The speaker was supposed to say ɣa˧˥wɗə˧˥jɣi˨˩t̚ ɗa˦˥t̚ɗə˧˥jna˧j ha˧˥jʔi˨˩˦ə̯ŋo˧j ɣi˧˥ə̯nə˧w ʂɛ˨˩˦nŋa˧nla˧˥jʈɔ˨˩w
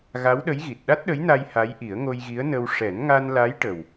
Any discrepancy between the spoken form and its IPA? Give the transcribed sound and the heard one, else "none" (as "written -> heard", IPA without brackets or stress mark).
ɔ˨˩ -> ə˨˩